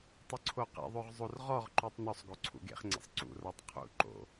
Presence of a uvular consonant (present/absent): present